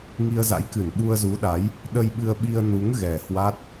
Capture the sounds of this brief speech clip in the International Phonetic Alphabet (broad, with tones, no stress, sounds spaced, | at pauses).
ŋ i˧ ə̯ z a̰˧˥ j k ɨ˧˩ n ɓ u˧ ə̯ z u˨˦ ɗ a˨˦ j | ɗ ə˧ j ɓ ɨ˧ ə̯ ɓ i˧ ə̯ n u˨˦ ŋ ɣ ɛ˨˩ h w a˦˥ t̚